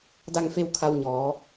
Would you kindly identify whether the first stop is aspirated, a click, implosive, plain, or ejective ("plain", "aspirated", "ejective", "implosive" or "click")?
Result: plain